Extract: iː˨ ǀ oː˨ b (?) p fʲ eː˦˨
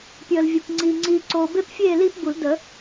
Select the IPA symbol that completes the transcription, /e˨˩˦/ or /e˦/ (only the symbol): e˦